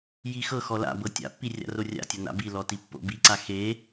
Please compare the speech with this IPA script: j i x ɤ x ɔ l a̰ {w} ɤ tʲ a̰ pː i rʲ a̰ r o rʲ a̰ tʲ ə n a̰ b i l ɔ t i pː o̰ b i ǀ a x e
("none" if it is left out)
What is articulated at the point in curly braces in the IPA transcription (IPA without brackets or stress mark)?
b